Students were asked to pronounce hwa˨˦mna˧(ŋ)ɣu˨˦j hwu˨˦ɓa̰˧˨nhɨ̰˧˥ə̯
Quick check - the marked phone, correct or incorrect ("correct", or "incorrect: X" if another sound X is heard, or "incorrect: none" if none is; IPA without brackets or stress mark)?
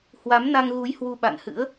correct